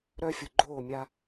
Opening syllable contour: high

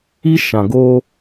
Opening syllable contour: high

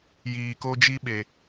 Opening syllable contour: low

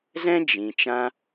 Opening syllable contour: high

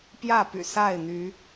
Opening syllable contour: falling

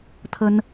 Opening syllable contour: high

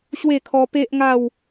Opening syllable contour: falling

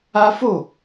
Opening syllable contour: high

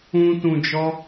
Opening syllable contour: high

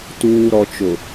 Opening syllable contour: low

